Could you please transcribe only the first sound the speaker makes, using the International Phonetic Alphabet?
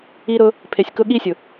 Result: i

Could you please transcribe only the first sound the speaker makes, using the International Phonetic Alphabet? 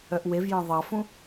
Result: œ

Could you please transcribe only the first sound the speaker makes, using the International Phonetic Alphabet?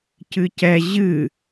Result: c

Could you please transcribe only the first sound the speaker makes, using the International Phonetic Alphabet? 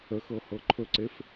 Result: ə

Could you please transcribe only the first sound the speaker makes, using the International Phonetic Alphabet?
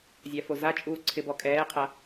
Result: zʲ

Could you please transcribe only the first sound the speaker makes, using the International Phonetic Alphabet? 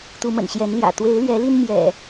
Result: t̪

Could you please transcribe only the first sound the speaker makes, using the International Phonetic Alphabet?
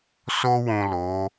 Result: s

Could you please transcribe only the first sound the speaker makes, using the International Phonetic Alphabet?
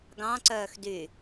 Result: ɡ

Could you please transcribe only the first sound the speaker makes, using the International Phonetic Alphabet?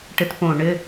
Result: ʈ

